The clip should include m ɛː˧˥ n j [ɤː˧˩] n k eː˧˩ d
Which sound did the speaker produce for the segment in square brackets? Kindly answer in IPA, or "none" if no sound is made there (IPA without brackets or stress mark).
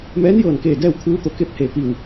ɤː˧˩